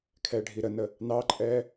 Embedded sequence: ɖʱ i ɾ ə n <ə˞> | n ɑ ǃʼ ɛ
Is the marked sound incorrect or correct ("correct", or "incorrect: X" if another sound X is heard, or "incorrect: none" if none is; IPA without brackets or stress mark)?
incorrect: ə